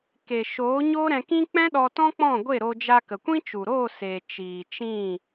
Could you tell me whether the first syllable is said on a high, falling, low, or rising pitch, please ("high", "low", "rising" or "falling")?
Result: low